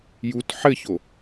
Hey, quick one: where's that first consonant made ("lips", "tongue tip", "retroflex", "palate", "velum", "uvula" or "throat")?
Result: palate